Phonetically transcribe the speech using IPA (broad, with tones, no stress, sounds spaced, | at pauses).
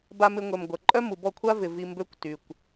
b a˧ m ɪ˧ ŋʷ ɛ˨ m ɡʷ ɐ˨ ǃʼ œ˦ m u˨ b ɔ˦˨ kʷʰ a˦ v ɪ˨ v i˧ m b ø˦ kʷ t y˨ kʷ